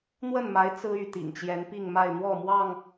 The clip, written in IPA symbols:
n̪wə˥˨nma˨˦ɪ̯ t͡sɹ̩˦y˥˨t̪ḭ˨˩ŋt͡ɕjɛ˨˦n pi˥˨ŋma˥˨ɪ̯ n̪wɔ˥˨mwɑ˥˨ŋ

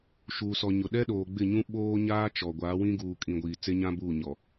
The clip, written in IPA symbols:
ʃuː˨sɔ˨ɲʊ˨ ɗɛ˦ɗoː˨ɡ͡bɪ˦˨ɲũ˦ ɓoː˦ɲaː˦ t͡ʃɔ˨ ɡʷaː˨˦wĩ˦ ɡuː˨kʼĩ˨ ɡʷiː˨t͡se˦ɲã˦buː˦˨ ɲɔ˨

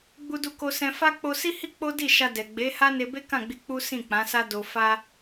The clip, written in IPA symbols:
ɡ͡bu˧du˧ko˧sɛ̃˧ fa˦ k͡po˧si˦hi˦ k͡po˦di˦˨ ʃa˧dɛ˨ ɡ͡be˨˦ha˦ ne˧be˦ kã˦˨ɡ͡bi˧ k͡pu˦sĩ˦˨k͡pã˨˦sa˦ do˧ fa˦

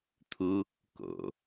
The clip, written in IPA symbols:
t̪ʰu | ko̰

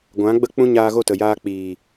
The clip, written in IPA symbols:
ɡʷã˨˦ɡ͡bə˦k͡pũ˦ ɲaː˧ɣo˦˨tə˨jaː˧ k͡piː˨

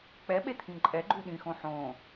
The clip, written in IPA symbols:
k͡pɛɓet̪ʰĩ ǃʼɛɡ͡ǃu ɗĩxõ ħõ

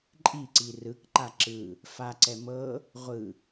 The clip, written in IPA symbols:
ǃʼiǀi rɯk ǃaǁɯ | fa ǀɛmɤ | ʁʷɯ

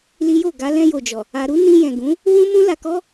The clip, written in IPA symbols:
li˦jo˦˨ ɡa˧lɛ̃˧jo˨d͡ʒɔ˨ | a˧ɾu˦ nĩ˧jɛ̃˨ ɡũ˨˦ | wũ˦mũ˦ la˧kɔ˦

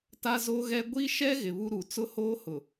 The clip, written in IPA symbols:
ta˦zo˦ɣɛ˦ ɡʷi˦ʃɛ˦ ɣɪ˨βu˦ɾu˨ t͡sʊ˦hoː˦hʊ˨

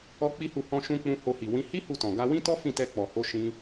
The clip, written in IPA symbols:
ɔ˦k͡pi˦hu˦˨ hɔ̃˧ʃũ˧k͡pũ˧ ho˧hi˨ wĩ˨˦ hi˦ hu˦˨tɔ̃˨ ɡa˧ wĩ˦tɔ˦ fĩ˦˨tɛ˧ k͡pɔ˨ho˧ ʃĩ˧

